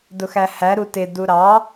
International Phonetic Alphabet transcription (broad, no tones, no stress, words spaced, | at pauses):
dʊxæhæ ɾutɪ duɾɑ